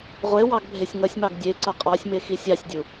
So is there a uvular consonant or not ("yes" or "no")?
yes